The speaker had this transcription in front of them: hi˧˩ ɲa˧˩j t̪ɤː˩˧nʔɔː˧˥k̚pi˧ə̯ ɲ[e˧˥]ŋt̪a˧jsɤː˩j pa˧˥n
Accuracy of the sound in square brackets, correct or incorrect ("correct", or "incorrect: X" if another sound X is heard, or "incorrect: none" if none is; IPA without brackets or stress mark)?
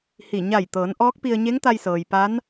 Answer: correct